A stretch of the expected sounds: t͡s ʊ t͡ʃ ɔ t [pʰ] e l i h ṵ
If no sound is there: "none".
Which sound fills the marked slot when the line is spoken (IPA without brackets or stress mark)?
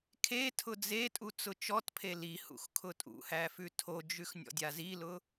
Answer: pʰ